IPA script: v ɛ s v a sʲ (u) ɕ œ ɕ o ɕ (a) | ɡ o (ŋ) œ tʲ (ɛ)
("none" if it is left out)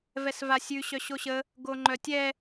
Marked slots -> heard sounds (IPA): ʉ, ə, ŋ͡ǃ, ɛ

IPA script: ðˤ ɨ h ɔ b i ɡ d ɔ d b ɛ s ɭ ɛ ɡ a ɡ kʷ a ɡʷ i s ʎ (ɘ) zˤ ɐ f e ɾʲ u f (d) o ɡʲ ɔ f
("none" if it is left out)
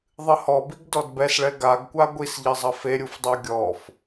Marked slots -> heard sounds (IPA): ɘ, dˤ

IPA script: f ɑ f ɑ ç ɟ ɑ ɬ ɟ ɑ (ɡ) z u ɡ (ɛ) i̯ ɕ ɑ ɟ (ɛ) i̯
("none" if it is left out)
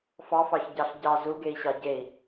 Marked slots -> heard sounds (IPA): none, e, e

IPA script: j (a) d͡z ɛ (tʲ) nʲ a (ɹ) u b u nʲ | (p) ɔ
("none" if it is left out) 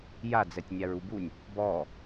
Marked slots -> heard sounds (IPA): a, tʲ, ɹ, b

